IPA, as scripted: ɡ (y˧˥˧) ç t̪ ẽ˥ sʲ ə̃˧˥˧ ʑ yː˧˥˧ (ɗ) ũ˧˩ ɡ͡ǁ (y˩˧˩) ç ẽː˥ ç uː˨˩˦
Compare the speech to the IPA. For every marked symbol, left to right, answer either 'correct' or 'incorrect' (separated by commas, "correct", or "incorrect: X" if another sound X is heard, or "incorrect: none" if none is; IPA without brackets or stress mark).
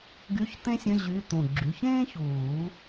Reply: correct, incorrect: t̪, correct